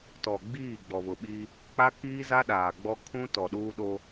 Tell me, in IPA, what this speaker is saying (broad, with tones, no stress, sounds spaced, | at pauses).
t ɔ˨ ɡ͡b iː˦˨ ɡ͡b ɔ˨ β ʊ˨ ɓ i˦ | k͡p a˦ k iː˦ z a˦ ɗ aː˨ ɡ͡b ɔ˦ kʰ ũ˦ t ɔ˨ ɗ uː˦ ɗ o˦